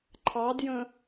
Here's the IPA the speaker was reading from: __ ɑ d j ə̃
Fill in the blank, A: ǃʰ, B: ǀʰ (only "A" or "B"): A